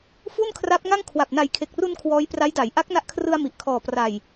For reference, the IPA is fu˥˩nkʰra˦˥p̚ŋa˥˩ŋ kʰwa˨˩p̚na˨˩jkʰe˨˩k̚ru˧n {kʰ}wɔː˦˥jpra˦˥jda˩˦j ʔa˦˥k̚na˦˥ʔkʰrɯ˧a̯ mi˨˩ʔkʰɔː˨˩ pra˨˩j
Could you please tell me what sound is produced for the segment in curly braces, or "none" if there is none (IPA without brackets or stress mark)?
kʰ